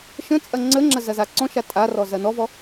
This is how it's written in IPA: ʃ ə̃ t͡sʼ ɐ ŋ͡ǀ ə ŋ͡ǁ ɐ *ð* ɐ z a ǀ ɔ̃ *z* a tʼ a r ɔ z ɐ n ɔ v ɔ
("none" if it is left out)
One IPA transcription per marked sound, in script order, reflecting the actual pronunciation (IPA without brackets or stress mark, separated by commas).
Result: z, ʃ